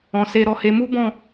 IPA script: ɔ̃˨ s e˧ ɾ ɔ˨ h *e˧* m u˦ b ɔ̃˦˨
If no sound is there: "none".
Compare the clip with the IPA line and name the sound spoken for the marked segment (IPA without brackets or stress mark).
e˧